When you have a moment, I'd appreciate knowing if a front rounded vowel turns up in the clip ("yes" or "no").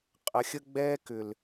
yes